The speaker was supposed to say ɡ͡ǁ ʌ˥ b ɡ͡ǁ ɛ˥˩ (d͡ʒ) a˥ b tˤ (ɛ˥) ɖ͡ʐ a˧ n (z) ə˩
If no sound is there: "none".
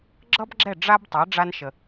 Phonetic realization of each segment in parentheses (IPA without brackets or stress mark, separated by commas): ɖ͡ʐ, ɛ˩˥, ʃ